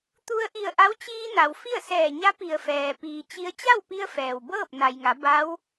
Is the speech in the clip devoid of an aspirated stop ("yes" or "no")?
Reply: yes